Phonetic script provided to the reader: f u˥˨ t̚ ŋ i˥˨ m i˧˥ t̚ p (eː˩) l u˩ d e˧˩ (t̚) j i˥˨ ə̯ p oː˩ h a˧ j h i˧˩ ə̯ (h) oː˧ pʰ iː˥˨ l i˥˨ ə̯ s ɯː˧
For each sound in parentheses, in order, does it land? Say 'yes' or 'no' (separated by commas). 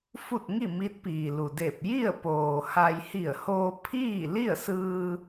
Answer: no, no, yes